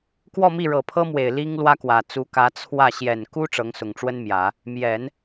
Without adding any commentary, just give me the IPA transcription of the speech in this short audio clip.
k w ɔ˥˧ m i˥˩ ɻ ɤ˨˩ pʰ ɤ˥ m w e˨˩ ɪ̯ l i˥ ŋ l w ä˥ k w ä˨˩ t͡s u˧˥ k ä˧˥ t͡sʰ w ä˥˩ ɕ j ɛ˨˩ n k u˥ ʈ͡ʂ ɤ˧˥ ŋ s ʊ˨˩ ŋ ʈ͡ʂ w ə˥ n m j ä˨˩˦ | m j ɛ˨˩˦ n

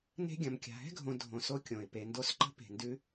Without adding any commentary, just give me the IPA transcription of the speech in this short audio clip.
n e̤˦ ɡʲ ɐ̃˨ m kʲ a̤˨ ɦ ɛ̤˦ ɡʱ õ˨ dʱ õ˨ s o˦ kʲ õ˩ ɪ̯ p e˨ n d o˦ s ǃ ə̤˥ p e̤˨ n d ʉ˥

